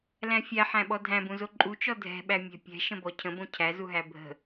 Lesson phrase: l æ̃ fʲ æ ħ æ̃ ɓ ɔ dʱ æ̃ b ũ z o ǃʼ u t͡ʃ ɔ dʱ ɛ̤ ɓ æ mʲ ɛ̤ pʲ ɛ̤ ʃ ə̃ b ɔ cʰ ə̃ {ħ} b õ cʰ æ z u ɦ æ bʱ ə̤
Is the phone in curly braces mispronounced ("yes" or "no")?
yes